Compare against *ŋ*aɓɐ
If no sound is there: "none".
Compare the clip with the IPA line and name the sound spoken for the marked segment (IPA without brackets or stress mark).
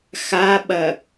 x